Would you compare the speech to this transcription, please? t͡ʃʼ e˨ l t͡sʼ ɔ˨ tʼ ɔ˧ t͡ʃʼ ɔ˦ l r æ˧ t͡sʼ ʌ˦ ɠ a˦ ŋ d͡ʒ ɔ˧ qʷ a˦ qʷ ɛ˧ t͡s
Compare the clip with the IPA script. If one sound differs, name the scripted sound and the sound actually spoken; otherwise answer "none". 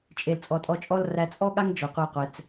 ʌ˦ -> ɔ˦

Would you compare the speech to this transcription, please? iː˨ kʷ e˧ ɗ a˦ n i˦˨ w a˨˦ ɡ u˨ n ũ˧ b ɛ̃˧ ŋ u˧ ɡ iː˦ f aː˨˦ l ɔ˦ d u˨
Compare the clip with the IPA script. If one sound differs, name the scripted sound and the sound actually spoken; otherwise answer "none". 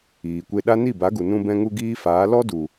w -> b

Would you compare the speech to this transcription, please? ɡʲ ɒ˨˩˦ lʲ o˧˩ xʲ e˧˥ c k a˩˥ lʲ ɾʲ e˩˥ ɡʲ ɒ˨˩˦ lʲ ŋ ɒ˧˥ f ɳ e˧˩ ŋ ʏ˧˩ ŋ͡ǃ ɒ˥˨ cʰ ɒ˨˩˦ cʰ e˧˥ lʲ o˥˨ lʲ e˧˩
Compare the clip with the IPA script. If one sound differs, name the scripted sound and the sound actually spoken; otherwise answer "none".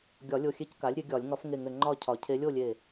ɳ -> ŋ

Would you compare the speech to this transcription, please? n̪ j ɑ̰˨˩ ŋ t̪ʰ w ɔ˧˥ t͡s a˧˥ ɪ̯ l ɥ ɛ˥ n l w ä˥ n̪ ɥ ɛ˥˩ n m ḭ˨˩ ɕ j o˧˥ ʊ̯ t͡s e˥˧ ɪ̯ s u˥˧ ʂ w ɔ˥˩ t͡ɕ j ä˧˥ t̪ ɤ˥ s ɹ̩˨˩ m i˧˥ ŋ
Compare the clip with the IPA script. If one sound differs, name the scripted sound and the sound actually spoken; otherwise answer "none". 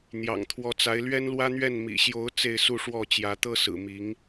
none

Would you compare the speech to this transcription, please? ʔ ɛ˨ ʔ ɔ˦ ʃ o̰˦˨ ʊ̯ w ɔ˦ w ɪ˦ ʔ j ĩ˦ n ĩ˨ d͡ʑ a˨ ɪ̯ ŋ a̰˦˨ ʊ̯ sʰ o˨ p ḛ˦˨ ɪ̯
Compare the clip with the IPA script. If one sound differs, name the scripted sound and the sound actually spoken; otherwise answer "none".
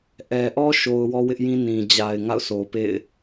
o̰˦˨ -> o˨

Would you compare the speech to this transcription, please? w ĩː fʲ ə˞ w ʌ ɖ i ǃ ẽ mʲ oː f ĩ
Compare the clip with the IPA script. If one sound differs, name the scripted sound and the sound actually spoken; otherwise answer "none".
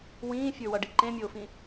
none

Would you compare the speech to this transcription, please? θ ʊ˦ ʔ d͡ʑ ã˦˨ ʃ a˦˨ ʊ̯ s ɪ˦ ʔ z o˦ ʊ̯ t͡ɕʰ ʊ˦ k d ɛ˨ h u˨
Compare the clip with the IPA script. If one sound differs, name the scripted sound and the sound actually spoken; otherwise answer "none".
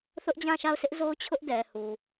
k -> ʔ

